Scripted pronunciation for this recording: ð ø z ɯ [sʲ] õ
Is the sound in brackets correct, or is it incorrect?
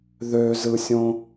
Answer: correct